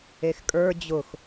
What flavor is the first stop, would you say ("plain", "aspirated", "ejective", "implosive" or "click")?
ejective